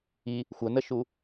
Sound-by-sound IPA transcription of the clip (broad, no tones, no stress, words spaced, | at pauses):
i | xʷənəʃu